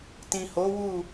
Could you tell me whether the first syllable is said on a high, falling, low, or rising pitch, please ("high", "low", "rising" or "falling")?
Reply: low